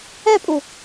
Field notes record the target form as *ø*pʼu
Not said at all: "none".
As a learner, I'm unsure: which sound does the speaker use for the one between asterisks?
ɛ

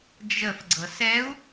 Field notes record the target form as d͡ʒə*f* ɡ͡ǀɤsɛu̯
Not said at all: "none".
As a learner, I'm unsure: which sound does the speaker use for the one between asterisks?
f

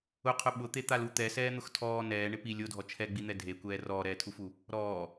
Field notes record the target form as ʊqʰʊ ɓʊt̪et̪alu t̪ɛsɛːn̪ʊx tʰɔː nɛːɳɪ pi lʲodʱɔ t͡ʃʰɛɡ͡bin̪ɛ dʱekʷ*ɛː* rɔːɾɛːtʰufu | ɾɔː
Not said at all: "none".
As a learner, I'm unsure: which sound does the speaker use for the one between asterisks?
ɛː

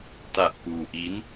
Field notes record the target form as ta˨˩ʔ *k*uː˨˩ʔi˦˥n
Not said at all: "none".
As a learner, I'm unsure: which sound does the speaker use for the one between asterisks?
k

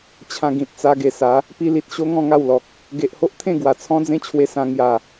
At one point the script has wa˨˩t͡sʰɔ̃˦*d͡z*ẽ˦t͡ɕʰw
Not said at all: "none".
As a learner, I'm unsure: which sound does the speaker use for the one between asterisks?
d͡z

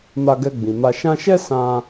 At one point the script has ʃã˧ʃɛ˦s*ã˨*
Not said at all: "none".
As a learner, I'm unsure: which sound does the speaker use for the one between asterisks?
ã˧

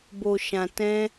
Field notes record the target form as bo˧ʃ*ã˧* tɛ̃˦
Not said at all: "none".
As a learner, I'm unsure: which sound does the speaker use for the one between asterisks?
ã˧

